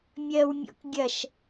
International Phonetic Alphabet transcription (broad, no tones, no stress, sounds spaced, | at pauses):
mʲ ɜ w mʲ ɔ̰ k ɡʲ ɐ ʃ